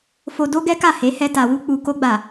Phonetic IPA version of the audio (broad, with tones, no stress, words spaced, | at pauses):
fo˧ do˦ɡɛ˦ka˦˨ he˨˦hɛ˧ ta˨wu˧ k͡pu˨ko˧ɡ͡ba˨